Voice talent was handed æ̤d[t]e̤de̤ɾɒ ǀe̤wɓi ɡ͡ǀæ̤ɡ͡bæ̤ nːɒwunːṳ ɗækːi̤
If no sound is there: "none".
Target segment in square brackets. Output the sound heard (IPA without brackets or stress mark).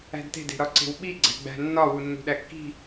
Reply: t